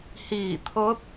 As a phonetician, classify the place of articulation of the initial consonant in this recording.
glottal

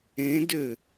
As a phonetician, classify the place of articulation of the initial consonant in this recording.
alveolar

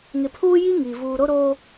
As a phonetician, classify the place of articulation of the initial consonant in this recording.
velar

